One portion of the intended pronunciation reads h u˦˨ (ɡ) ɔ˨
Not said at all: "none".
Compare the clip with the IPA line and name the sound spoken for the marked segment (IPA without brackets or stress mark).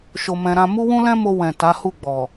ɡ͡b